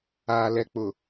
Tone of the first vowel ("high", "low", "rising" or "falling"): low